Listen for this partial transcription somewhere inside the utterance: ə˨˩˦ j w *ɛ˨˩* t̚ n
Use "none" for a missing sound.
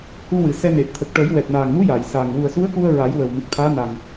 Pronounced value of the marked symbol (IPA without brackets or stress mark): ɛ˨˩